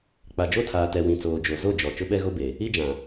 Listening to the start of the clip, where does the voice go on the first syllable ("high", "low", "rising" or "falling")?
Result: low